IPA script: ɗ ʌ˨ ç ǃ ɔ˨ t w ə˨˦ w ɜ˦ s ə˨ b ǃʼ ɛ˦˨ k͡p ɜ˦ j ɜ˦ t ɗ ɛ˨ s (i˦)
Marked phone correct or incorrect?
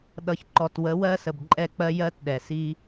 correct